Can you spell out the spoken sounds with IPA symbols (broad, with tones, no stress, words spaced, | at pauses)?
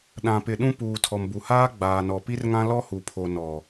ɗã˨pɪ˨ɗũ˦ puː˨tʰɔ˨mbu˨haː˦ ɡ͡baː˨nɔ˨pi˦rŋã˦ lɔ˦hu˨pʰo˨ nɔ˨